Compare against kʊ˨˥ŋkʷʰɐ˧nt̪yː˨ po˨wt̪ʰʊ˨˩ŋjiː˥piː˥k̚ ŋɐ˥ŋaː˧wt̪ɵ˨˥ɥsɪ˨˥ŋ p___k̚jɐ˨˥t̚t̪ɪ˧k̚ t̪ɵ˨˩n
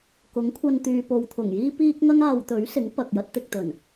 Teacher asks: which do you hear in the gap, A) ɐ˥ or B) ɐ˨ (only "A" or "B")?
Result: B